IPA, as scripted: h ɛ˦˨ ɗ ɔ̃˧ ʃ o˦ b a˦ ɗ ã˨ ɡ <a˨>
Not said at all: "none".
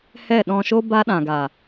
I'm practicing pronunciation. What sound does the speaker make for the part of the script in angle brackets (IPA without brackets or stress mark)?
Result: a˨